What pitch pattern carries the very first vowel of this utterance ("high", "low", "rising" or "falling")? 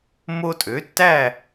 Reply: high